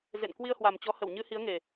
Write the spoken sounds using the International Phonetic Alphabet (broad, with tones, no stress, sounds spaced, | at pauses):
z ḛ˧˨ n k w i˧ ə̯ h w a˨˩ m t͡ɕ ɔ˨˦ h ə˧˩ w ɲ ɨ˧ h i˨˦ ə̯ ŋ e˨˩